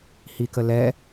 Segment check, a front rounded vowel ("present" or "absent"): absent